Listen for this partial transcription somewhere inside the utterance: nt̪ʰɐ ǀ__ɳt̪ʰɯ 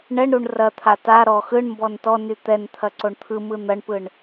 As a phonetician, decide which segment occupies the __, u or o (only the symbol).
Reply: o